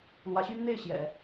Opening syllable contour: rising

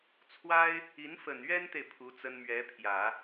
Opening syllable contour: high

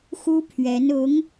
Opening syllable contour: high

